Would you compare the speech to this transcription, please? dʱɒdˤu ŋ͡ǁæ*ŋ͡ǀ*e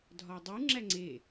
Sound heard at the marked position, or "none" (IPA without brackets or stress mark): ŋ͡ǀ